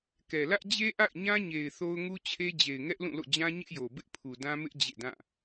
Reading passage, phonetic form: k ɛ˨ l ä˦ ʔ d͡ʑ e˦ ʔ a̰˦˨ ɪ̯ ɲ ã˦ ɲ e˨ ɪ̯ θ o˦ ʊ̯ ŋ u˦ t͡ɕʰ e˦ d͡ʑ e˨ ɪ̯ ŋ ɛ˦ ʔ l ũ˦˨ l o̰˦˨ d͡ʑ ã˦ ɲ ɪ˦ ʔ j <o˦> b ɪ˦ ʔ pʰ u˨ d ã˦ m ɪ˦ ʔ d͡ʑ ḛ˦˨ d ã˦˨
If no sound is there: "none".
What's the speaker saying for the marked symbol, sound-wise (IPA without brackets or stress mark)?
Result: o˨